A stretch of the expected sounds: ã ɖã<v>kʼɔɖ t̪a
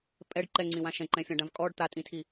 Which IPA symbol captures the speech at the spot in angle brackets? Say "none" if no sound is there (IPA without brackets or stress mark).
v